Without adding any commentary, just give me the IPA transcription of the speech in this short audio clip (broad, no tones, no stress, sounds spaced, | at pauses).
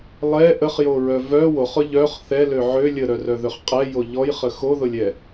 lˠ ɛ ʔ ə χ j o ɹ œ v œ w o χ ʊ ʎ œ χ θ ɛ l ø ʕ ø lʲ ə ɾ œ r œ ð ø χ qʼ ɛ j o ʎ ɔ j χ ə x o ð ʊ lʲ ɛ